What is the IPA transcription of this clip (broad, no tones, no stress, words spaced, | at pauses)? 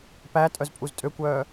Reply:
pæ tʼœzpʼuztʼøkʷœː